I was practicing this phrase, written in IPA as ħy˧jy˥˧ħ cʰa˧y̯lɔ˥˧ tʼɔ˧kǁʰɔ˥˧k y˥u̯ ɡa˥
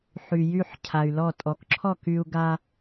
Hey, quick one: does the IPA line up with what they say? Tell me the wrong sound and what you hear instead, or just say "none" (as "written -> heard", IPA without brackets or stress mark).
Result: none